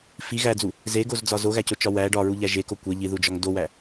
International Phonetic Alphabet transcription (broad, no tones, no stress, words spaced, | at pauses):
fi ɣæd͡zu | zeɡozd͡zɒ zoɣæcot͡ʃɒ wæ ɖɒɹuʎæ ʒeko kʷe ʎiðud͡ʒɒŋ dowæ